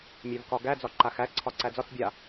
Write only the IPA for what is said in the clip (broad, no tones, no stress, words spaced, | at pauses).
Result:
mʲævkɒɡæ d͡zɒǃaxæ ǀʰɒǀæd͡zɒt͡s bʲa